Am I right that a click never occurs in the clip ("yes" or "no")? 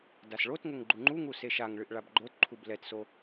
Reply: no